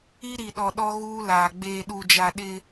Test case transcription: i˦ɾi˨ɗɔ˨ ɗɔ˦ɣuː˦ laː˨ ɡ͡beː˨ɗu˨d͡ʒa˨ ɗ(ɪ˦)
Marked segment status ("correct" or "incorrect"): correct